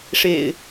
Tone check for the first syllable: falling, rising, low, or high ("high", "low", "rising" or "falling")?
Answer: low